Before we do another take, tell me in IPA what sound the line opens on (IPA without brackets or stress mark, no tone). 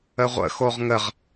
ə